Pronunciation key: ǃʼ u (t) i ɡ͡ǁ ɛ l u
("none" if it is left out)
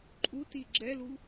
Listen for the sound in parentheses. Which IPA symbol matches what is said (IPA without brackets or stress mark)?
t